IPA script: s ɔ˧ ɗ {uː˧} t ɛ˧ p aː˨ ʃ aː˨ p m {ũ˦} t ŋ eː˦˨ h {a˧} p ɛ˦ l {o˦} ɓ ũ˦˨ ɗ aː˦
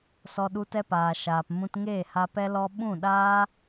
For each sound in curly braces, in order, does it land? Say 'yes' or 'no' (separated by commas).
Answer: no, no, yes, no